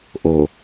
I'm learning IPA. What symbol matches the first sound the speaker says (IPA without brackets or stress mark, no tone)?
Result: ʔ